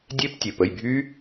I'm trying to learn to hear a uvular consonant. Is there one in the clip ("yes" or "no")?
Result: no